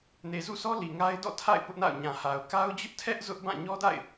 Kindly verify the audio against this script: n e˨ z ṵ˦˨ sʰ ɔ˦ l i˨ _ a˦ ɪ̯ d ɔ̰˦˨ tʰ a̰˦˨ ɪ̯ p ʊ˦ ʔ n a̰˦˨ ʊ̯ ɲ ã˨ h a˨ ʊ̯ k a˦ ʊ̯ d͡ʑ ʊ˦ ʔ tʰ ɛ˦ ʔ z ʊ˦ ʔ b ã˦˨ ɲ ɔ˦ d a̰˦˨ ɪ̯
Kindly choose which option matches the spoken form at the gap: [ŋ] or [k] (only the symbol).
ŋ